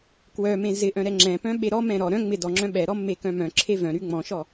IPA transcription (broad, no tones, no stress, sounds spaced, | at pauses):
k w œ m ẽ z ɪ ʔ œ̃ ɾ ɛ ŋ͡ǁ ɛ̃ p œ̃ ɓ e ɾ ɔ m ɛ̃ ɾ ɔ ɾ œ̃ ŋ͡m ɪ d ɔ ŋ͡ǁ œ̃ ɓ ɛ ɾ ɔ mː e k œ̃ m œ̃ ǁʰ e v œ̃ ɾ y ŋ͡m ɔ̃ ʃ ɔ